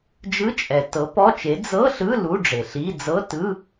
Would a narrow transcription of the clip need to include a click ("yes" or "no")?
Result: no